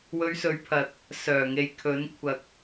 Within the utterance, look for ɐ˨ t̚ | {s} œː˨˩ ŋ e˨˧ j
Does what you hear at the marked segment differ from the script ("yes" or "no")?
no